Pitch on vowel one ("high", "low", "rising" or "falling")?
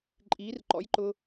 rising